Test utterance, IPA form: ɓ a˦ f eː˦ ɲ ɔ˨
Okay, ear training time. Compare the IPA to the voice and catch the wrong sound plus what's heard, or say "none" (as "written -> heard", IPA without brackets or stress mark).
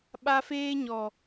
none